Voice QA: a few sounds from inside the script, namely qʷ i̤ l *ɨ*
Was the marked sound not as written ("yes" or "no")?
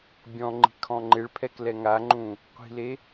yes